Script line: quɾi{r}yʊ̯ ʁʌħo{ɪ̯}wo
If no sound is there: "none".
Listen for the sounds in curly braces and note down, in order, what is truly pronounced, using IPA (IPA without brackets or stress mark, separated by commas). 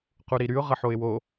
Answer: ɾ, ɪ̯